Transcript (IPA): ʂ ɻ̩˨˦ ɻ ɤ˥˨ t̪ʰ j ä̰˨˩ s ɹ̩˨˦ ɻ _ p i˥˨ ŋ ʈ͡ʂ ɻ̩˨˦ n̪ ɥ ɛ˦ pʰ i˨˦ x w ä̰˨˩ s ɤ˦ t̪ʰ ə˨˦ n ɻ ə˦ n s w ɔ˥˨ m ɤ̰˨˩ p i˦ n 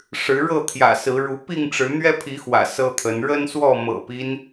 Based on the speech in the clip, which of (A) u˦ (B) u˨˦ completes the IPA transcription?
B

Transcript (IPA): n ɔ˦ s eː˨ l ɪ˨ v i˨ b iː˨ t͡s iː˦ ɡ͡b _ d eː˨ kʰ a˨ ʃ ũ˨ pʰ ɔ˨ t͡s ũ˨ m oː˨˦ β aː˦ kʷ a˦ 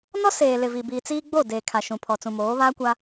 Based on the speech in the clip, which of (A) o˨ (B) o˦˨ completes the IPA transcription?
B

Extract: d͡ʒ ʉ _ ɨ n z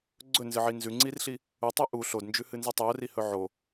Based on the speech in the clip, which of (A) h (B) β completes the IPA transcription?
A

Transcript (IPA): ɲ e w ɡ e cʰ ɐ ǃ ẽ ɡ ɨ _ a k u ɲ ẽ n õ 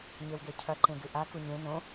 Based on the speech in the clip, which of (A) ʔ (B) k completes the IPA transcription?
A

